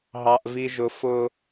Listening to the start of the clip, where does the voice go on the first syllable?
high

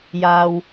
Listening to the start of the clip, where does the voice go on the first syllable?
low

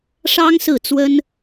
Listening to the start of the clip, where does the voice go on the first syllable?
high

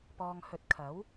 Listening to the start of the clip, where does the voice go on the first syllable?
low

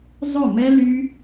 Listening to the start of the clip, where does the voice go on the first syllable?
falling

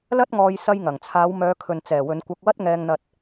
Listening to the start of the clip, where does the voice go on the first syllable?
high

